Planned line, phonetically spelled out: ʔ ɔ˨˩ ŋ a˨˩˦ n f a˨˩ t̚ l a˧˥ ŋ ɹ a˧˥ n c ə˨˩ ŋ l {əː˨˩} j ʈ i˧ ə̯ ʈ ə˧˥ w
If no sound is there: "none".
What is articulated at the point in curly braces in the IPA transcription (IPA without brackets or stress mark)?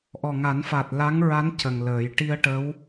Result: əː˨˩˦